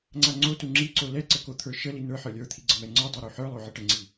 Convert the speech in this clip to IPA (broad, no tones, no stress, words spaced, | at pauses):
ŋ͡ǀaŋ͡ǀotu ŋ͡ǁiǀo lɛ ǀəkot̪ʰə˞ ʃəli nə˞ ħə˞lʲə˞t̪ʰi ɡ͡ǀəmɛŋ͡ǀə˞dˤo ɾuħə˞lˠo ʕəʈəŋ͡ǀi